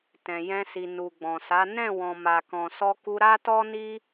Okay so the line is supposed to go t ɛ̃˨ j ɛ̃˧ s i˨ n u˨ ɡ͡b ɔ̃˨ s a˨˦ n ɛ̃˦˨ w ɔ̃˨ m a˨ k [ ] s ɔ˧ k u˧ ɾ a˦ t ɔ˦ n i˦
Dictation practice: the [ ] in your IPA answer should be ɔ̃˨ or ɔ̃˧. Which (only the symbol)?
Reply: ɔ̃˨